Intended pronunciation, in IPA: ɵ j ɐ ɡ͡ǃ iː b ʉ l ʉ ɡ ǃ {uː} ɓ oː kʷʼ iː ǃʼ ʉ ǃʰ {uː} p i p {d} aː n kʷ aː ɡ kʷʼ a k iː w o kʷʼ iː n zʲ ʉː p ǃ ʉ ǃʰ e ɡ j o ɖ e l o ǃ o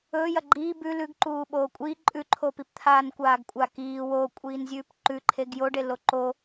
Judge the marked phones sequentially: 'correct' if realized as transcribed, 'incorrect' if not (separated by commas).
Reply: correct, incorrect, incorrect